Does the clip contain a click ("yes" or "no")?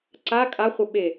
yes